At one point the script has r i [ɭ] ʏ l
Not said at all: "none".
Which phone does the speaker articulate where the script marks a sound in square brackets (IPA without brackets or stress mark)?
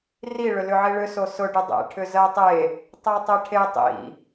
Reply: ɭ